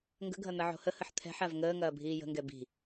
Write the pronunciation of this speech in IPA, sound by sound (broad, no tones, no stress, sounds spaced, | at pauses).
ŋ ɡ ə̤ ɡʱ ɐ n̪ ɐ ʕ o̤ h ə h ə ħ t̪ʰ ɛ̤ ħ a v ŋ əː ŋ ɐː bʱ iː j ə̤ ŋ ɡ ɛ b i̤